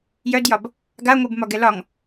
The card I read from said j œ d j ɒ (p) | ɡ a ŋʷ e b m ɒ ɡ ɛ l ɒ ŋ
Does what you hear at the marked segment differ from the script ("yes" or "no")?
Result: yes